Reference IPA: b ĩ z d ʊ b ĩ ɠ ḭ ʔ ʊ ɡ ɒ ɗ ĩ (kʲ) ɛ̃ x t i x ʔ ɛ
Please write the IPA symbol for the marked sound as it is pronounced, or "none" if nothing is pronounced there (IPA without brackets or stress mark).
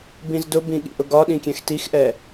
kʲ